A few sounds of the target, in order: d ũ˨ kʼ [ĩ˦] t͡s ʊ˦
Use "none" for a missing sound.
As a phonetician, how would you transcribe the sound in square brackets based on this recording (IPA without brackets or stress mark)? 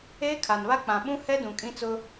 ĩ˦